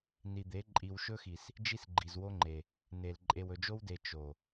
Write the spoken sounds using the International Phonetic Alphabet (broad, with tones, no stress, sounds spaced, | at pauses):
n i˨ d̪ e˨˦ ǃʼ i˨ w ʃ ɵ˦ x i˨ s | d͡ʒ i˦ s ɡ͡ǃ i˨ z w o˦ ŋ͡ǃ e˨ | n e˨ l ǃʼ e˨ w ɵ˨ d͡ʒ o˦ w d e˨ t͡ʃ o˨